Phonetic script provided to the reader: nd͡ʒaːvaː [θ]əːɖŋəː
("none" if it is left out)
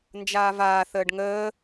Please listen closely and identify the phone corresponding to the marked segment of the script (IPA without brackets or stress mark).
θ